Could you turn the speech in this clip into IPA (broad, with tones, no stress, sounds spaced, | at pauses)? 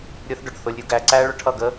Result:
ɾʲ ʊ˧ θ ɖ ʊ˨ ɖ θ ʊ˧ lʲ ɾʲ u˧ ɡ æ˧ ǀ æ˦ ɭ ʊ˧ ʈʰ ʌ˦˨ ɡ ə˦